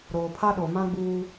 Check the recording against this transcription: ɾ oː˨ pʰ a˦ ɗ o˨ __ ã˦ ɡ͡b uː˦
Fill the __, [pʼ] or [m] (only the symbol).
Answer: m